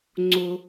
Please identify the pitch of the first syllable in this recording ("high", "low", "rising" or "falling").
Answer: high